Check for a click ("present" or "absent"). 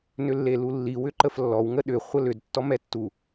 present